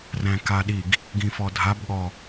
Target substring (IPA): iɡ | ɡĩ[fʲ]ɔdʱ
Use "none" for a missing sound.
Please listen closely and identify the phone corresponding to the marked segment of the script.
f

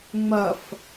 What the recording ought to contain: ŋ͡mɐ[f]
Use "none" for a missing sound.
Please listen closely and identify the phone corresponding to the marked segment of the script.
f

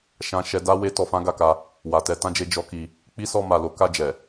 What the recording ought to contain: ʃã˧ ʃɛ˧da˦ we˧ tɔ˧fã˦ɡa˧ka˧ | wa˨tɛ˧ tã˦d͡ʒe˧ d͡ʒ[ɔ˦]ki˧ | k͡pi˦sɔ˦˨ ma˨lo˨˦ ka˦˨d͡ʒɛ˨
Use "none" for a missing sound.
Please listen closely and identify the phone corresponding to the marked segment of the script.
ɔ˦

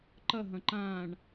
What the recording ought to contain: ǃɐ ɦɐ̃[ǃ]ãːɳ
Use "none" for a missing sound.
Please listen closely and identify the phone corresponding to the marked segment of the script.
ǃ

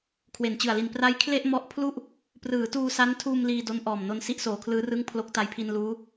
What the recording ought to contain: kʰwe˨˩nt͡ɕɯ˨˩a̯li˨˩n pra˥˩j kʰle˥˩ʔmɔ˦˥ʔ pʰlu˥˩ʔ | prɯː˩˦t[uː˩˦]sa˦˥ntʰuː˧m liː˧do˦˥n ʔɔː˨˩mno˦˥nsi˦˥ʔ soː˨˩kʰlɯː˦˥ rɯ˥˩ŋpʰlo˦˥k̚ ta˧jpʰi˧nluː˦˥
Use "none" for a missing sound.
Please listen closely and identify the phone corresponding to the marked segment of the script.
uː˧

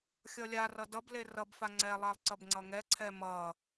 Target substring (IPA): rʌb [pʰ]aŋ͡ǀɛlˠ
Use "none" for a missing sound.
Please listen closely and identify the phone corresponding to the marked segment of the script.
f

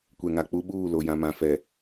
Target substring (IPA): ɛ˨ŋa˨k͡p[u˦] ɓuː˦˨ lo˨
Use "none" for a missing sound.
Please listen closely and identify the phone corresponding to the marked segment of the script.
u˦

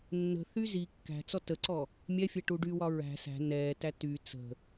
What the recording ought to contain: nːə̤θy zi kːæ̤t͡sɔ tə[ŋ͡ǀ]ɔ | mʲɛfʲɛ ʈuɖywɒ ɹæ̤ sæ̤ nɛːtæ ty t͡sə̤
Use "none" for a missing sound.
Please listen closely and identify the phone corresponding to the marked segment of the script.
ǀ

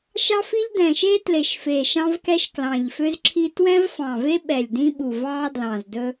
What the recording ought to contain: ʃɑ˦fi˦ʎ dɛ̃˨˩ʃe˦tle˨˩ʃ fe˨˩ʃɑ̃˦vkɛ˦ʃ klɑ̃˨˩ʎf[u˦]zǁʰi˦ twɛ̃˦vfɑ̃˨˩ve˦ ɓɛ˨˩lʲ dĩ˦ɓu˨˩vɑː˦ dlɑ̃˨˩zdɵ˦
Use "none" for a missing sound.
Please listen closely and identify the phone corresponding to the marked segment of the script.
ø˦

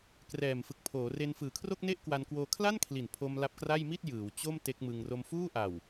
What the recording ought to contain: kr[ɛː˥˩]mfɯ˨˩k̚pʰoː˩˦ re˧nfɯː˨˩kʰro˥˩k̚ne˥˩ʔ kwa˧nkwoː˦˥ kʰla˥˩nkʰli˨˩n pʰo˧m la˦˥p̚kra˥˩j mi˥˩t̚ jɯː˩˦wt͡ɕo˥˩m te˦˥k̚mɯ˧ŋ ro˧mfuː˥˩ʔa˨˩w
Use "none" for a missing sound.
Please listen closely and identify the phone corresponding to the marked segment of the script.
ɛː˨˩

